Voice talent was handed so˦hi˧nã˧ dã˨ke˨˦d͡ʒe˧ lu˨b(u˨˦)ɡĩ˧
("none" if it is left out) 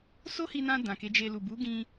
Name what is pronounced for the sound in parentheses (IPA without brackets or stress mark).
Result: u˨˦